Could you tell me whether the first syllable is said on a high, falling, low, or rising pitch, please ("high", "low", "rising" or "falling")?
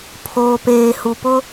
low